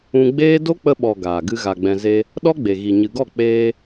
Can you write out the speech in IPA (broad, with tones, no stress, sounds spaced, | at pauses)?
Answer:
ũ˧ ɡ͡b eː˦ d o˦ k͡p ə˧ ɓ ɔ˨ ɡ aː˨ ɡ ɨ˦ ɣ a˧ ɡ͡b ɛ̃˧ z e˧ | ɗ ɔ˦ ɡ͡b e˨ ɣ i˨ ɲ ɨ˨ ɡ ɔ˦˨ k͡p eː˧